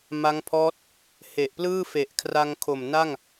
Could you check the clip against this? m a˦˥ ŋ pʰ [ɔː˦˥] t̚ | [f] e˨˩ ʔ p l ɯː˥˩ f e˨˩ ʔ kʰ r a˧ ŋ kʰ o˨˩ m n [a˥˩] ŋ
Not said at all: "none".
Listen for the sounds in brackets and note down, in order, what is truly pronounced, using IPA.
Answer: ɔː˦˥, h, a˥˩

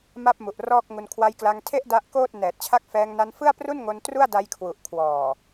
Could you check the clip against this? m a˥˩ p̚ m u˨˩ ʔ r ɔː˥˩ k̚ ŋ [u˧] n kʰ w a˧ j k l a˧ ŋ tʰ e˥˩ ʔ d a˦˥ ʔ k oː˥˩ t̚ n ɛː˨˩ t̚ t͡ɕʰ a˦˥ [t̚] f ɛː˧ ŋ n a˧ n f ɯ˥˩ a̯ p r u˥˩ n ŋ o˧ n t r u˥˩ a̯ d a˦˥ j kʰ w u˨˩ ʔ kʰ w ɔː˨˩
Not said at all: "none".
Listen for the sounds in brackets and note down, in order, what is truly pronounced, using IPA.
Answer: u˧, k̚

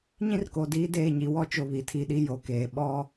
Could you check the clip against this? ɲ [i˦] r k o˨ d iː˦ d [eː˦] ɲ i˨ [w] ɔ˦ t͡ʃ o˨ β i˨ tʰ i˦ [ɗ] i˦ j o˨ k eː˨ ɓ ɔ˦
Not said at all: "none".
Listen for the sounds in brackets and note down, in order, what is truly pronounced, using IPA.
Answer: ĩ˦, eː˦˨, w, ɗ

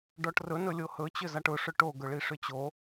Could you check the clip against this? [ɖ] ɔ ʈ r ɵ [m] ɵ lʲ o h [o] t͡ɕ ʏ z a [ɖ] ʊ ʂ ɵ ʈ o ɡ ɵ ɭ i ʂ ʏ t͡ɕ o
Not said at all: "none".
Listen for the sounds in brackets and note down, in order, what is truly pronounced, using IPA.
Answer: ɖ, n, ɵ, ʈ

